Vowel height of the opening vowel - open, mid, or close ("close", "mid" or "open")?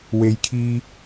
mid